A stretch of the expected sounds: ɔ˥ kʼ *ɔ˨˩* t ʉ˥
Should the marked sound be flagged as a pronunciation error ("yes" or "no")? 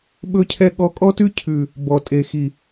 yes